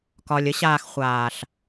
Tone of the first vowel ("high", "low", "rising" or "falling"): low